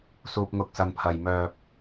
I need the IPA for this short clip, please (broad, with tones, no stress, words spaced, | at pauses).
suː˨p̚ŋʊ˨k̚sɐ˨npʰɐ˨j mœː˧p̚